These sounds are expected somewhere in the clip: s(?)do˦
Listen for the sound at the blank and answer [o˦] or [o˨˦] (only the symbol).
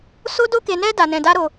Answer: o˦